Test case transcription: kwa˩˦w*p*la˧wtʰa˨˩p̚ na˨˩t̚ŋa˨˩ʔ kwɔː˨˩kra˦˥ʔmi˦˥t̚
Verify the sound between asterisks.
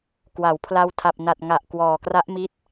incorrect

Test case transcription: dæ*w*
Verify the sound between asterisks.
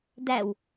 correct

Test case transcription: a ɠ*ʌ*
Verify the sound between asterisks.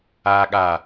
incorrect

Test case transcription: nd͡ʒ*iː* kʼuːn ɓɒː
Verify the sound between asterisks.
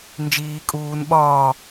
correct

